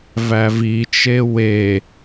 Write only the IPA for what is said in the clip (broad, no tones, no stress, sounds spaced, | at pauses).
v æ v i t͡ʃ e w e